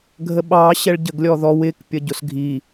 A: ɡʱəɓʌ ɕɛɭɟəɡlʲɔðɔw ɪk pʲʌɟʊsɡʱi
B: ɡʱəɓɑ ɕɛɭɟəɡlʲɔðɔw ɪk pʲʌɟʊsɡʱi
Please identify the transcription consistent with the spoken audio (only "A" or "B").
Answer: B